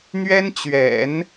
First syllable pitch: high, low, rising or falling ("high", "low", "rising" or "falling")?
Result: high